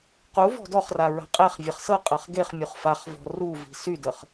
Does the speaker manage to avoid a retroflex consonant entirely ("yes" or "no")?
yes